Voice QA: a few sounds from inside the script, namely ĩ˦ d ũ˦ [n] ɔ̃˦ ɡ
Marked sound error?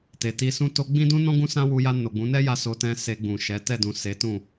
no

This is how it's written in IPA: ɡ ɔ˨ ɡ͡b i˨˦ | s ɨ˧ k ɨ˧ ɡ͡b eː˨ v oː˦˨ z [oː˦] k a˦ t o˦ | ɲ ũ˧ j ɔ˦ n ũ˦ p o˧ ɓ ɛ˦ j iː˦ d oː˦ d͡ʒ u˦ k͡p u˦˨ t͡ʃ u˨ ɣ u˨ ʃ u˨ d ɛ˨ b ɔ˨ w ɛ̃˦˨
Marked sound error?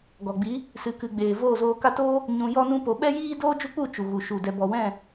yes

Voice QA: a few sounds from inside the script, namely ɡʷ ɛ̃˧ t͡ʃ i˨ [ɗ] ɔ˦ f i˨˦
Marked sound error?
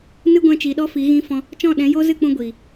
no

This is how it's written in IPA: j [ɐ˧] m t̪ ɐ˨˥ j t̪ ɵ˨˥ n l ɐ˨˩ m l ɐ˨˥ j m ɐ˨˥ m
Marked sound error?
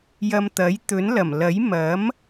no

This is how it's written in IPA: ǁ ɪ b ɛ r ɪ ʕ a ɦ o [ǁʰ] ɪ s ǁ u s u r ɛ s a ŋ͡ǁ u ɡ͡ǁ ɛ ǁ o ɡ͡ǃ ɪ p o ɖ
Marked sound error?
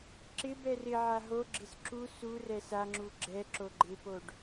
yes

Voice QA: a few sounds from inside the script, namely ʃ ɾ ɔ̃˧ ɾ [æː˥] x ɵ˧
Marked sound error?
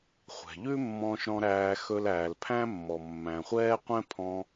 yes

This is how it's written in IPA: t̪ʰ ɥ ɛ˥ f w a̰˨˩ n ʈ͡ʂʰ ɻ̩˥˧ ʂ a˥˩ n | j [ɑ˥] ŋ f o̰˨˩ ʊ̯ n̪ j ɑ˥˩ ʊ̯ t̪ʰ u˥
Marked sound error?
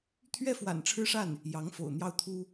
yes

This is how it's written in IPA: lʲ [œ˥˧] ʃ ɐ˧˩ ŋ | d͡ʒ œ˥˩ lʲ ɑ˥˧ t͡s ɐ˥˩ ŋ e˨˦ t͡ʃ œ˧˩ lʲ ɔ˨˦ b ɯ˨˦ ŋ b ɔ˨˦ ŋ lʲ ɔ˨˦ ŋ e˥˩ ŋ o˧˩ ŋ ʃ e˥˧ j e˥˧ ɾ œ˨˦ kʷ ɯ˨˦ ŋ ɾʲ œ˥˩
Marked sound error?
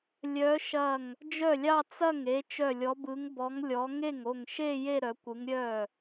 yes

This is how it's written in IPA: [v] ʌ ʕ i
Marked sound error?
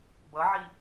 yes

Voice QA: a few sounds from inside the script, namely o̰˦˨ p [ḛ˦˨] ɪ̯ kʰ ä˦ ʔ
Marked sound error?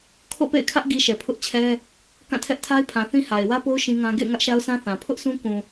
no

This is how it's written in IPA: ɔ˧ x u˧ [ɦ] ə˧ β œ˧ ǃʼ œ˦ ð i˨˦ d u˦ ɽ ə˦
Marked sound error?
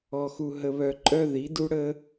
no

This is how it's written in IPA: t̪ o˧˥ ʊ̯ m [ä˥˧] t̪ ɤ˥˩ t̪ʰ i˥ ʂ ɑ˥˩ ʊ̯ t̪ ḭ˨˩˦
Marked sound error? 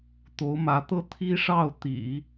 yes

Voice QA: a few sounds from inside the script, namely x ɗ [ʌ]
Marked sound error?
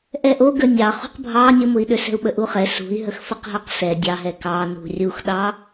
yes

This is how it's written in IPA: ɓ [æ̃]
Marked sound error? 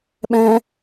yes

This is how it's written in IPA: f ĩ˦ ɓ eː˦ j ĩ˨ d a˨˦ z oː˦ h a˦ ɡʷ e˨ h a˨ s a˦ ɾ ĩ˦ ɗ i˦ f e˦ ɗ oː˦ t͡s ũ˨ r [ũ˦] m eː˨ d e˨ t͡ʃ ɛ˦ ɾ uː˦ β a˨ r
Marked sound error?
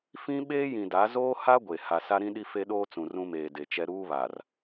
no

